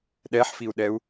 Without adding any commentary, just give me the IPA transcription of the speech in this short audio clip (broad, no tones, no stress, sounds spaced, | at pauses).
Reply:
ɗ ɛ ħ f i u̯ ɗ ɛ u̯